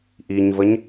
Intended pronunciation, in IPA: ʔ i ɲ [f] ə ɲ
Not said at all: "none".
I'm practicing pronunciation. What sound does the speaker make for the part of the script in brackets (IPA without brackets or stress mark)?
v